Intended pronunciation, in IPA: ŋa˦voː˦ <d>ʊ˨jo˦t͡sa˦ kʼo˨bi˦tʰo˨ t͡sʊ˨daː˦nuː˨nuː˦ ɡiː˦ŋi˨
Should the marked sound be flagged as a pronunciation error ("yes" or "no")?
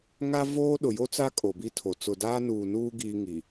yes